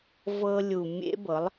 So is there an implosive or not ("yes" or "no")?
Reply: no